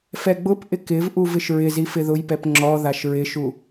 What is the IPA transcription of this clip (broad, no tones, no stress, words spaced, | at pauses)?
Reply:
fɛɡ͡bʊpʔɪ kɪvʔuv ɪʃɹɪzi fɪðʊjpɛp ŋ͡ǁɔðaʃ ɹɪʃu